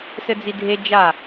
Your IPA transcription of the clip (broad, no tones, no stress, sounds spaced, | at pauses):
s ɘ d͡z i dʱ e d͡ʒ a